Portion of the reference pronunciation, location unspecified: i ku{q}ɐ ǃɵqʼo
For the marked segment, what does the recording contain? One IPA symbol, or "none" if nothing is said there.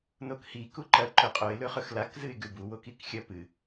ǃ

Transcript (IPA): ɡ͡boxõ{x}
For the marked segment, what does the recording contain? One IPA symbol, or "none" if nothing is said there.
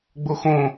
none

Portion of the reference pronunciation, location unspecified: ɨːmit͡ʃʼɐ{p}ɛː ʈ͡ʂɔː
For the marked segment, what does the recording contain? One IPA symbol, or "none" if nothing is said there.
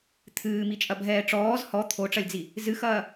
bʱ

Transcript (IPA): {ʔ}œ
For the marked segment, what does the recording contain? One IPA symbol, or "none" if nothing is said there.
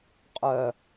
qʼ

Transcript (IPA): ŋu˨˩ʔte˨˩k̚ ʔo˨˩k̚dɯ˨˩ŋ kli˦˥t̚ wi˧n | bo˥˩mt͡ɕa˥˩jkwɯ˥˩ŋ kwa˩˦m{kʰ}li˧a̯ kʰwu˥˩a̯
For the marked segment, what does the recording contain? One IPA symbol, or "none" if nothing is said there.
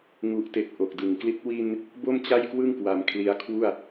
kʰ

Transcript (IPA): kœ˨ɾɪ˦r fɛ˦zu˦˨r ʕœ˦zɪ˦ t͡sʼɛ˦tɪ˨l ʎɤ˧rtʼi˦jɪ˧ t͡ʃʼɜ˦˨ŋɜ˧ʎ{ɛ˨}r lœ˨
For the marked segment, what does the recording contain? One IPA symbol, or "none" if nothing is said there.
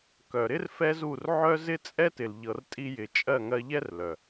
ɛ˦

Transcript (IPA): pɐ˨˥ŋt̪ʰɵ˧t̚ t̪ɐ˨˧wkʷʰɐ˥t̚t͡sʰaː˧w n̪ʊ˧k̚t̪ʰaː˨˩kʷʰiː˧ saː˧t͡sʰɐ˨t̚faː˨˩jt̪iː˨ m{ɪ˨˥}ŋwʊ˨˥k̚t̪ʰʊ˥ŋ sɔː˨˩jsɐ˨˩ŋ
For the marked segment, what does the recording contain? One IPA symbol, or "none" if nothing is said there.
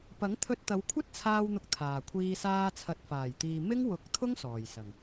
ɪ˥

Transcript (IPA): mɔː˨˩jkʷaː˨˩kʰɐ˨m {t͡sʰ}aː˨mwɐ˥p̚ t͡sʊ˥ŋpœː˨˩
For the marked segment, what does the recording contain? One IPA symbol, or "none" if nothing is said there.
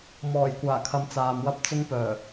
t͡s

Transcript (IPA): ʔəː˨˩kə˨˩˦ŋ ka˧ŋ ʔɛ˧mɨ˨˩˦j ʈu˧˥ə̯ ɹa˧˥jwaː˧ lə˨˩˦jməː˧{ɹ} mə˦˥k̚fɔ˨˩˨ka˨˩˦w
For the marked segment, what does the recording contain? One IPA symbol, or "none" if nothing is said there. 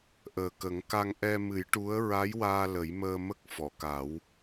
none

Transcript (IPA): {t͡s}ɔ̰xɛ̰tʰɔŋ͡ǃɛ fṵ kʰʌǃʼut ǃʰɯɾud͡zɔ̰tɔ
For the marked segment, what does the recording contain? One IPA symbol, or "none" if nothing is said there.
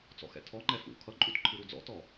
t͡s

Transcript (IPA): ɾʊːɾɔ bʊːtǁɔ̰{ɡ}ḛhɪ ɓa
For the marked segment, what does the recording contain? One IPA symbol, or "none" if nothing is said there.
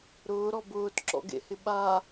ɡ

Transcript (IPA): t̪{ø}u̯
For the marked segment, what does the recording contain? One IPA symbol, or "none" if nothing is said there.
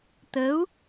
ə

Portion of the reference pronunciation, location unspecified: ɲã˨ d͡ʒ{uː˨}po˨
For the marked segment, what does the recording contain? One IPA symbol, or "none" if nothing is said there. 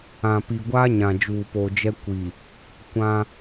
uː˨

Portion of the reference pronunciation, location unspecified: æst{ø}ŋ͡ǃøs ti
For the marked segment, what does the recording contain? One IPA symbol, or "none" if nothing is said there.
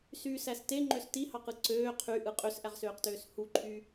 e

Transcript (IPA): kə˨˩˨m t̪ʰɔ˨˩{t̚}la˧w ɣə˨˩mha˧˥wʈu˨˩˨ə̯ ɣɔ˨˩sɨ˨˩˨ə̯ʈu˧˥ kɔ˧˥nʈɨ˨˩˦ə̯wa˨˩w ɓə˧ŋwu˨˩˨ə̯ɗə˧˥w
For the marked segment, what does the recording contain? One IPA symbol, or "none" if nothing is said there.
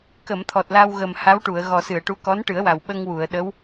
t̚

